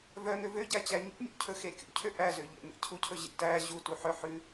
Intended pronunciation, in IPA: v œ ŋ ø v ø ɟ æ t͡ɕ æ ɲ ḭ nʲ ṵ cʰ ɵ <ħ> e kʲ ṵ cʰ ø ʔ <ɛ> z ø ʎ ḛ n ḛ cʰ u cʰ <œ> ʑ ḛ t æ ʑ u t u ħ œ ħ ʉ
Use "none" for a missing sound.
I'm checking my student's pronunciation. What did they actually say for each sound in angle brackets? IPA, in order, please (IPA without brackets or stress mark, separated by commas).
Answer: x, æ, ɵ